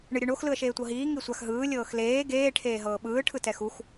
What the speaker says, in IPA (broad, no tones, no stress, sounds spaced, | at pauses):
ɳ ɯ ɾʲ ɯ ɳ o x l ɯ ə̯ ʃ eː tʷ ɤ ɦ iː ŋ i sʷ a x ɦ ɯː lʲ ɤː x l eː ɡ eː ʈʰ eː ɦ ɤː ɓ ɯː ʈʰ ɯ t ɛ x u x